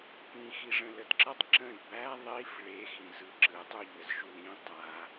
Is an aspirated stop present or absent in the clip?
absent